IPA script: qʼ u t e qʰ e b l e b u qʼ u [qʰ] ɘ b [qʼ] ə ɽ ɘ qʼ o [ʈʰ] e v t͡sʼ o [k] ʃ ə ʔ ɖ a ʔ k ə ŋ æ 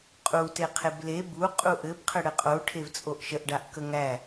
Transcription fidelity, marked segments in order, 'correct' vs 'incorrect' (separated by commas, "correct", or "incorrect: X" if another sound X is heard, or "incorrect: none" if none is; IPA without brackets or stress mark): incorrect: ʔ, incorrect: qʰ, correct, incorrect: ʔ